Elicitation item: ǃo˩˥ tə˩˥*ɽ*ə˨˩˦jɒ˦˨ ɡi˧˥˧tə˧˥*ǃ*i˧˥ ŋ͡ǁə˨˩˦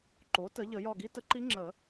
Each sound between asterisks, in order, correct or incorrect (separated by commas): incorrect, correct